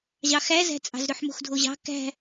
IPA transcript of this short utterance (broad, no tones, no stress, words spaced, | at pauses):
ʑɑxæzæ̤t͡sʼɑ̤z ɾøħmo̤xdʱoʑɑ̤ kæ̤